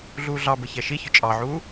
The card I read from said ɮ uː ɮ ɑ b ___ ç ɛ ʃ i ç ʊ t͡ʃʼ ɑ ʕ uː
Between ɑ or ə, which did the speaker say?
ə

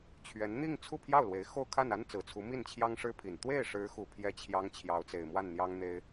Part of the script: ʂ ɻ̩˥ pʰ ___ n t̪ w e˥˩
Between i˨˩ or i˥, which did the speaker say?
i˨˩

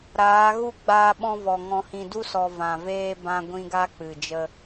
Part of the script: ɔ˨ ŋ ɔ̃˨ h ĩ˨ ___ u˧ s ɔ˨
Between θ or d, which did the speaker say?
d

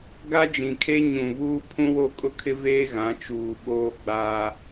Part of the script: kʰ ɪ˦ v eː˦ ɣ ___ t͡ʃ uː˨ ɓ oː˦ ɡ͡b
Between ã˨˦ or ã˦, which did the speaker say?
ã˨˦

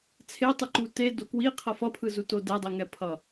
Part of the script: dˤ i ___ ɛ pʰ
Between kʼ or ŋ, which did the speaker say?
ŋ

